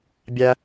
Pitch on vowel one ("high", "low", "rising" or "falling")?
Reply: high